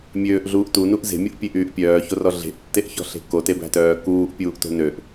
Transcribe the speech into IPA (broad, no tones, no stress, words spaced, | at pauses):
mʲøːʔɮuːʔ tunuʔ ze̤mʲoʔpʲeʔyːʔ pʲœːçorɔ ɮe̤ʔtːeʔçɔ̤ɬe̤ kotebæ̤tœː kuːʔpʲuːʔto̤ nøʔ